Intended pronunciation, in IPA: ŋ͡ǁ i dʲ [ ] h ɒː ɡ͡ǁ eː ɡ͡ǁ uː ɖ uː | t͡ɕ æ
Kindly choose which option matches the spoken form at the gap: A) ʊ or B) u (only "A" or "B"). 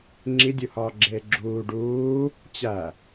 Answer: B